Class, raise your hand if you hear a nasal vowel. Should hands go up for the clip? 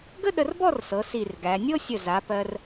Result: no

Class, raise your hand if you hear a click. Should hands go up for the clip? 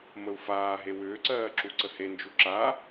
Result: yes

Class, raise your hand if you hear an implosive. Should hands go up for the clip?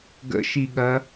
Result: yes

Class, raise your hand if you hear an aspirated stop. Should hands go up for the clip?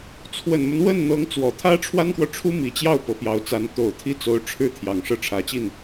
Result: yes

